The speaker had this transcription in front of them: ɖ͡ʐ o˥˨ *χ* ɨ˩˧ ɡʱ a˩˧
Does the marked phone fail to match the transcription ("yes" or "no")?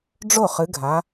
no